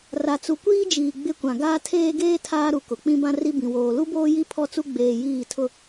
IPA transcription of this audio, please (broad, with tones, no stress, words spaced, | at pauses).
ra˨t͡su˨kʷiː˦d͡ʒiː˨ ɡ͡bɪ˦kʷã˨ ɡaː˦ tʰeː˦ɡeː˦ tʰaː˦ ɾu˨kʊ˨ k͡pĩ˦bã˦ri˦bĩ˨ woː˨lu˦boː˦ji˦ pʰɔ˦t͡su˦ ɡ͡beː˨ jiː˦˨tʰʊ˦